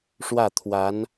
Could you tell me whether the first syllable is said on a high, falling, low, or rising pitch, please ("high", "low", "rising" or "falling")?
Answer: falling